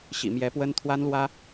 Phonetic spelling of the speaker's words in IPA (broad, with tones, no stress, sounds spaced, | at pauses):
ɕ ḭ˨˩ m j ɛ˧˥ p w ə˥ n t̪ʰ w a˥ n l w ä˥